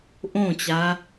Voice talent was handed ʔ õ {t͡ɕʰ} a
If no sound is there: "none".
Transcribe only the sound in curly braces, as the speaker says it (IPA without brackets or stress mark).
t͡ɕ